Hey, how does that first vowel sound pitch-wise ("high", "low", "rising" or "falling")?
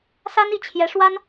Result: high